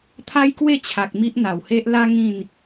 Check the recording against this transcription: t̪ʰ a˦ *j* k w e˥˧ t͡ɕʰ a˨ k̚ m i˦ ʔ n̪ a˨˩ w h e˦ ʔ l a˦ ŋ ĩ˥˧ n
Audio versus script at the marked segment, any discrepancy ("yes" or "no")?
no